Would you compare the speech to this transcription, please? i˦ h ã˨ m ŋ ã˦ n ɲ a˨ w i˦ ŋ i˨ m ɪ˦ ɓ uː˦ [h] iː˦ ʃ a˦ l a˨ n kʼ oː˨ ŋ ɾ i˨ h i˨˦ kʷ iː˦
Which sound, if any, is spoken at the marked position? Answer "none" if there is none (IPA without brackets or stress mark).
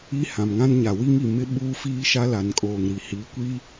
f